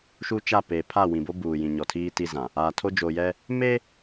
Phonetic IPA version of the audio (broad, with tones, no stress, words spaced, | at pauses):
ʃu˦t͡ʃa˦˨ peː˨pʰa˦˨wĩ˨bo˦ buː˨jĩ˨ ɲɔ˨tʰiː˦ ti˦zã˨ | aː˨tʰo˦d͡ʒoː˨jɛ˦ | me˦